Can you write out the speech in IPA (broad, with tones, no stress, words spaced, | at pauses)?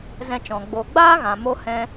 zɛ̃˧t͡ʃɔ̃˨ ɡ͡bo˨ ɡ͡baː˦ɣã˨ mo˧ hɛ̃˧